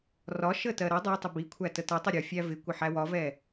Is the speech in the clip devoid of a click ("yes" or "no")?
yes